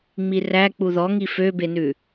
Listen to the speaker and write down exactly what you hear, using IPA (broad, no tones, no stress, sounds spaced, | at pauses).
ŋ͡m i r æ k͡p u ð ɔ ŋ i f ø b e n ʉ